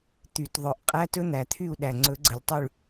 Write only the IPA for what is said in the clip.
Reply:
t̪ y˨˩˦ t ðˤ ɵ˨˩˦ ʔ qʼ æ˧˥˧ t ɵ˦˥ n̪ æ˨˩ t̪ʰ y˦˨ u̯ ɗ æ˨˩ ŋ͡ǀ ɵ˨˩˦ ɡ͡ǀ ə˨˩ lʲ tˤ y˦˨ ɭ

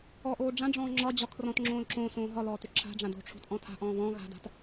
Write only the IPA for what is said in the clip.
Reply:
ɔ ʔ oː ɖ͡ʐ ã ɖ͡ʐ ɔ̃ː ŋ͡ǁ ɒ d͡ʑ ɒ kʰ r ɔ̃ t ŋ͡ǁ õː l ǁ õ s õː ɦ ɒ l ɔː t ʏ ǁʰ a̤ ɖ͡ʐ ã d o̤ ʈ͡ʂʰ o̤ t ʔ ɔ̃ tʰ a̤ ʔ ɔ̃ː β ɔ̃ ɣ a̤ d a̤ t

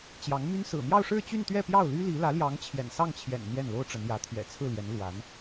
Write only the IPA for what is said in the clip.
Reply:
t͡ɕ j ɑ˧˥ ŋ m y˥ n s ɹ̩˨˩ m j ɑ˥˧ ʊ̯ ʂ ɻ̩˥˧ t͡ɕ y˥˧ n t̪ ɥ ɛ˥˧ p j ɑ˥˩ ʊ̯ l y˥ l i˧˥ l ä˧˥ l j ɑ˧˥ ŋ t͡ɕʰ j ɛ̰˨˩ n s ɑ˥˩ ŋ t͡ɕʰ j ɛ̰˨˩ n n̪ j ɛ˥˩ n l o˥ ʊ̯ ʈ͡ʂ ə˧˥ n j ä˧˥ t̪ʰ ɥ ɛ̰˨˩ t͡sʰ ɹ̩˥˩ l j ɛ˧˥ n l w a˧˥ n

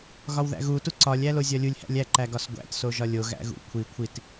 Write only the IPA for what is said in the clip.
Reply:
ɣ ɒ w ð æ̰ ɣ u t u ǀ ɒ lʲ æ l o zʲ ɒ lʲ u lʲ h æ̰ lʲ æ ǃ æ ɡ ɒ s ɡʷ æ̰ t s o ʒ ɒ lʲ o ɣ æ̰ ɣ ṵ kʷʰ i kʷʰ i t

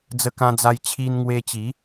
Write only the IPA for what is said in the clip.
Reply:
d͡z ə˧ k ã˧ d͡z a˧ j t͡ɕʰ i˧ n ŋ w e˧ t͡ɕ i˨˦

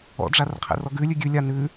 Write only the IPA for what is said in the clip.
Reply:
ɔ̰ ɖ͡ʐ a r qʰ ɛ̰ r ɔ ɡ ʉ lʲ ʉ ɡʲ ʉ lʲ a n ʉ

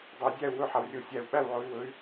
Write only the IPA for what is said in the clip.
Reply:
dˤ e˨˦ dʲ æ˥˨ u̯ w ɵ˥˨ ħ a˨˩ w rʲ o˨˩ sʲ æ˨˩ u̯ ɓ æ˥˨ w ʕ o˨˦ y̯ w ɵ˨˦ y̯

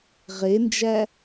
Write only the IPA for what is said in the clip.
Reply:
ʁ e n d͡ʒ æ

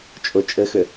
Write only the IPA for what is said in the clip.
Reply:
t͡ʃʼ ʊ t͡ʃʼ ɘ x ʏ

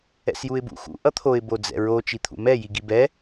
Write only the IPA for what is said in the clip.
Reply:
ɛ̰ s j u ɪ̯ b ṵ x ṵ ʔ ʌ t̪ʰ o ɪ̯ b o d͡z ɛ̰ ɹ o t͡ʃ i t̪ʰ ṵ m ɛ j i ɡ i b ɛ

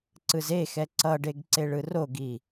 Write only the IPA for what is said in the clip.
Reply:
ǀ ɯ z e x ɛ ǀ ʌ ɖ e ɡ ǀ e ɭ ɯ r o ɡ i

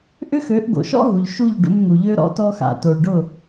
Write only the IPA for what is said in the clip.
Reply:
ʔ ʏ˦ x ø˨˦ ʔ ɡ o̰˨ ʃ ɔ̰˦ ɦ u˨ ʎ ʃ u˦˨ ʎ ɖ ṵ˧ m n̪ u˨ ʎ ø˧ ɾ ɔ̰˨˦ t ɔ˧ x a̰˨ t o˨ ɭ ɖ ʊ˦˨

